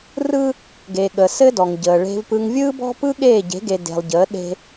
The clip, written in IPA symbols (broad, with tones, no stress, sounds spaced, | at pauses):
r ɯ˦ | ɡ e˨ ɠ ə˨ s ɘ˦ d ɔ˨ ŋ ɟ əː˨ ɭ e̤˦ v p ɯ˦ ŋ vʲ ɯː˦ b ɔ̤˦ p ɯ˦ ɠ eː˦˨ ɟ e̤˨˦ ɡ e˨ d e̤˨ lˠ ɟ əː˨˦ ɗ e̤˦